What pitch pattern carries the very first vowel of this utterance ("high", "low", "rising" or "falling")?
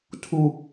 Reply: low